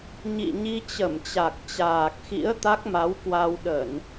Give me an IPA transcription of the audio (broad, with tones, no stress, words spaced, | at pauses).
ɲḭ˧˨ɲi˧ t͡ɕə˧˩mt͡ɕa˨˩k̚ t͡ɕaː˨˩k̚xḭ˧˥ə̯ t̪a˦˥k̚ma˨˦wkwa˧w ɗə˧˩˨n